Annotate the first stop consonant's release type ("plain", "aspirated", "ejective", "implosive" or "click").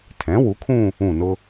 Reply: aspirated